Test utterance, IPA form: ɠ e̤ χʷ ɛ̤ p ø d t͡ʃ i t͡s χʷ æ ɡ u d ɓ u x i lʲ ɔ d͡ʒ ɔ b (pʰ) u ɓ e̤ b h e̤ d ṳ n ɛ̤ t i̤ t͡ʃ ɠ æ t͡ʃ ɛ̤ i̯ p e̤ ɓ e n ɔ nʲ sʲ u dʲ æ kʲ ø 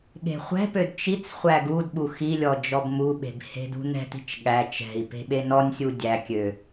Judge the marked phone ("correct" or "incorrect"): incorrect